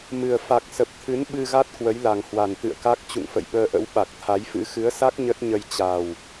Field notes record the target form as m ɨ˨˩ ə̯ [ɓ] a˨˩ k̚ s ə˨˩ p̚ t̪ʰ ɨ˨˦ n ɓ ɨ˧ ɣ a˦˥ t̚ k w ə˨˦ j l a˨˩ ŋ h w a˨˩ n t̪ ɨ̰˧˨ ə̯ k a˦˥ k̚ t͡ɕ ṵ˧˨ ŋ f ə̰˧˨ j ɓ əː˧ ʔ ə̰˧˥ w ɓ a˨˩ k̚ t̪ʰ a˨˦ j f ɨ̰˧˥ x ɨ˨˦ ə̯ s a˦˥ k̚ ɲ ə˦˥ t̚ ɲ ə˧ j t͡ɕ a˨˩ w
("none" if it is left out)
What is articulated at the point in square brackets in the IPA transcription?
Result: f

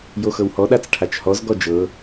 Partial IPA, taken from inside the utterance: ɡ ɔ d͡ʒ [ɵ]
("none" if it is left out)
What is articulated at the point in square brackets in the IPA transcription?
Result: ɤ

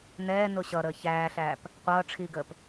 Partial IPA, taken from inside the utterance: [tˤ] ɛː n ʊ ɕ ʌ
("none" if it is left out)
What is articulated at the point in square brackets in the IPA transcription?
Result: n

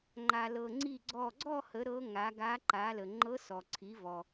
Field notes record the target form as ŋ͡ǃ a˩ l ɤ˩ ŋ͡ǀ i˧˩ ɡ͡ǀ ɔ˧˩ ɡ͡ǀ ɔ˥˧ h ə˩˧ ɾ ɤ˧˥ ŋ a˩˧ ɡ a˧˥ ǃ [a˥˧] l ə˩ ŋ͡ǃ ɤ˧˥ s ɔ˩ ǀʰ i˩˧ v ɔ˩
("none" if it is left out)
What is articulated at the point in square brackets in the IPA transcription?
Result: a˩˧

